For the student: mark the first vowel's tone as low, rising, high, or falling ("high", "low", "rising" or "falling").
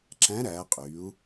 rising